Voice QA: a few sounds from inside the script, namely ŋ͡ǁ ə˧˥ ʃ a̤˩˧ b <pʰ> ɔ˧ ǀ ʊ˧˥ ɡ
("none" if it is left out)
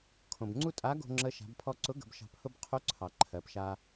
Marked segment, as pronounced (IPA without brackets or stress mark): pʰ